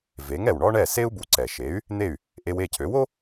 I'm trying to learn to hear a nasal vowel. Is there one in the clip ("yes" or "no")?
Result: no